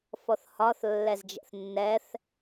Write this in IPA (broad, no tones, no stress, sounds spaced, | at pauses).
f ɔ θ h ɒ θ lː ɛ z d͡ʒ ɛ̰ θ nː ɛ θ